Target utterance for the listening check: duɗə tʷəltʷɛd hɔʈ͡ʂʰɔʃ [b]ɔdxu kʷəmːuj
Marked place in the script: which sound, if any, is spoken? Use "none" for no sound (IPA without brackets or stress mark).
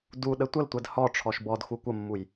b